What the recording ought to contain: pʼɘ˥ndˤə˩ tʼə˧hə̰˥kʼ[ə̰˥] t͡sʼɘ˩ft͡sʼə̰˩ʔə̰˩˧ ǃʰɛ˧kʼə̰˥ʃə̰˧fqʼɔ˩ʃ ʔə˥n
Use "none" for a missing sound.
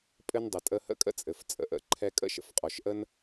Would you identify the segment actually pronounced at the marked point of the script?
ə̰˥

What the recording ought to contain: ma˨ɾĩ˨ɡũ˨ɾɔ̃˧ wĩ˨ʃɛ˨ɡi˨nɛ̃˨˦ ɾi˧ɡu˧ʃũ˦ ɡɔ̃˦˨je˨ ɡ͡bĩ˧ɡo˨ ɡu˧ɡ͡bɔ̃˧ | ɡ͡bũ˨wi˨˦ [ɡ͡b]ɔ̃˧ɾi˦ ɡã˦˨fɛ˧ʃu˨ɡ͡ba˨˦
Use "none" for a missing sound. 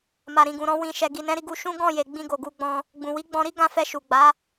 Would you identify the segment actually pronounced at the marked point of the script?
ɡ͡b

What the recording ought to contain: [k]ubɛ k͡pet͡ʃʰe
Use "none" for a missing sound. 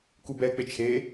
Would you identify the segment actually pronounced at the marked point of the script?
k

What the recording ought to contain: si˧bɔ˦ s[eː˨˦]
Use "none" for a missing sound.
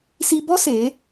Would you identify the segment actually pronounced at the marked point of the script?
eː˨˦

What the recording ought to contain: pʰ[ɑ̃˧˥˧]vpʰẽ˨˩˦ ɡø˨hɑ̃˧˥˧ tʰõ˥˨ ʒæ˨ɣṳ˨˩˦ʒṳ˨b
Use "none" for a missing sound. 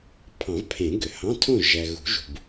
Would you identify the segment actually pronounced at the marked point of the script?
ɑ̃˨˩˦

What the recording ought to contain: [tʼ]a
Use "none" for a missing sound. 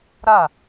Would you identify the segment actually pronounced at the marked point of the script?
ɾ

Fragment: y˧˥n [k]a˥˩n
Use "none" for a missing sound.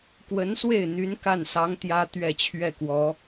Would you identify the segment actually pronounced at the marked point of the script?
k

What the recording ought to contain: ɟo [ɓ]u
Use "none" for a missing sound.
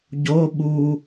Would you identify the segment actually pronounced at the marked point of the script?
ɓ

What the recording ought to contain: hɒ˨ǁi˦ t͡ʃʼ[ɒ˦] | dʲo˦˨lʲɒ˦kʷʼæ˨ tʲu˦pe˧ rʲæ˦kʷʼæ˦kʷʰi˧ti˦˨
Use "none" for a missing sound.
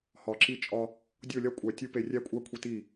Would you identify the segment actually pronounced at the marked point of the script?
ɒ˧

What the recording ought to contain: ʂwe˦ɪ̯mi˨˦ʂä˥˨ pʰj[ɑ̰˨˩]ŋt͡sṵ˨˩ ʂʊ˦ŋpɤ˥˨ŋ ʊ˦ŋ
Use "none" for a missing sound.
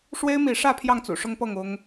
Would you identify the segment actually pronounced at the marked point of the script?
ɑ˥˨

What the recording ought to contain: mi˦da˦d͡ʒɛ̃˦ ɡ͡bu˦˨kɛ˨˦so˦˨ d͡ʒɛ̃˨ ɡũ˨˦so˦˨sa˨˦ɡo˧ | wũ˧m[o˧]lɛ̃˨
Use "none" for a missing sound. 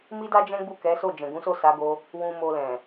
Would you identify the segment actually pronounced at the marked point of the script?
o˧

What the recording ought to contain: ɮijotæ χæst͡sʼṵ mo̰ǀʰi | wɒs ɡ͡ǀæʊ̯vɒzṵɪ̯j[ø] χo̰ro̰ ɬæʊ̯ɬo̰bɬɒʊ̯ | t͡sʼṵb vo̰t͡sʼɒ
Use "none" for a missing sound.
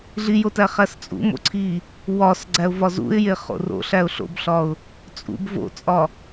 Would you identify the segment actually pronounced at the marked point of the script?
e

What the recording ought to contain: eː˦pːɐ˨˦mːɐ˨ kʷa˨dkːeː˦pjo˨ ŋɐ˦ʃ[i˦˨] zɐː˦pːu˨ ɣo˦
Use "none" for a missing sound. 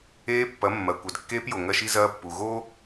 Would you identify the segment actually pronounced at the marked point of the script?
i˦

